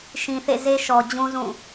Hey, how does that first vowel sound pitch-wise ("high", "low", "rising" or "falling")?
low